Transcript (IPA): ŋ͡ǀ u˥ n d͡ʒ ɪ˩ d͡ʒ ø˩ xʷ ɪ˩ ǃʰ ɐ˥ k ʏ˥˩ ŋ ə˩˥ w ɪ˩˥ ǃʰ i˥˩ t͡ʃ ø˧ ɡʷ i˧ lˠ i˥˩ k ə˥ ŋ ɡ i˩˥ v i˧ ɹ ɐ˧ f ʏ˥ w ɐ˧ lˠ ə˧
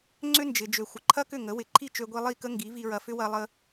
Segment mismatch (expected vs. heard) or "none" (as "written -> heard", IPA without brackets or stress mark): u˥ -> ʏ˥